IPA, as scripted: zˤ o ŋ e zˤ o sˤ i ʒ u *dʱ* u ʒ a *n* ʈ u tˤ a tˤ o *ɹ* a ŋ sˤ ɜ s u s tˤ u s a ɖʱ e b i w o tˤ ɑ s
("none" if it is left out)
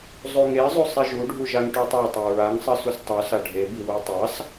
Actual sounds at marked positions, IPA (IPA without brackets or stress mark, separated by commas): ɖʱ, ŋ, ɹ